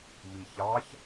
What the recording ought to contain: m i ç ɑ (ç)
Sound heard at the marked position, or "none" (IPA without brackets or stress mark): ç